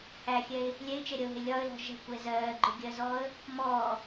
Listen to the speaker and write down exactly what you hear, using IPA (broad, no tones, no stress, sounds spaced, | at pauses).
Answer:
h æ xʲ ɛ ɪ̯ | lʲ ɛ ɪ̯ t͡ʃ ɛ ɾʲ ʌ ʊ̯ ɦ ɪ lʲ ɒ ə̯ l ɔ̤ ʒ ɛ̤ kʷ ɛ z ɜː ɡ͡ǃ ʊ ɡʲ ɜ z ɔː ə̯ | m ɔː